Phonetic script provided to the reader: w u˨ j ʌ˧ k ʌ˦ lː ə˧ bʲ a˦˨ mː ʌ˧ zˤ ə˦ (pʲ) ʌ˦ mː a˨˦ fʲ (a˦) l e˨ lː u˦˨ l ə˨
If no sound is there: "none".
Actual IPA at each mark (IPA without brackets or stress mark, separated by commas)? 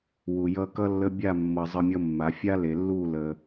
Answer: mʲ, a˦